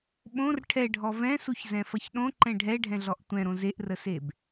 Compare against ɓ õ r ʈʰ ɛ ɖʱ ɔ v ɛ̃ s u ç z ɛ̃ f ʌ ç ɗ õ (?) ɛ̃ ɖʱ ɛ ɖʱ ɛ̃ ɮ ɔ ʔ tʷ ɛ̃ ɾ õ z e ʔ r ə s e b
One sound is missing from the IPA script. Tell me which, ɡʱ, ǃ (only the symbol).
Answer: ǃ